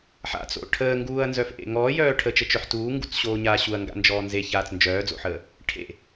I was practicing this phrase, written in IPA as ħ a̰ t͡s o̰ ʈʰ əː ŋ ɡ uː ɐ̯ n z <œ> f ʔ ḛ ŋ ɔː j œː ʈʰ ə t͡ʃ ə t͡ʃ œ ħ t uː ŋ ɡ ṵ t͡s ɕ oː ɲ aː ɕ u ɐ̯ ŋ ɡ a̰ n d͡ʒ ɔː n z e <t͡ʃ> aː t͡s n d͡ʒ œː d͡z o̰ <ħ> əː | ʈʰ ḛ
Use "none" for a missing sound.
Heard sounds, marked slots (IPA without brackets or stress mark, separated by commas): œ, ç, ħ